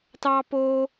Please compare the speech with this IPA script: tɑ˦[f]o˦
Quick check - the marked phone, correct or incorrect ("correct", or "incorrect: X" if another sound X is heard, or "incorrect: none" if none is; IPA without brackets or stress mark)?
incorrect: p